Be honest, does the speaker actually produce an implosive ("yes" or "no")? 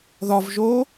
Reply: no